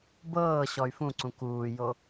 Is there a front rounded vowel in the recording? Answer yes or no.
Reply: yes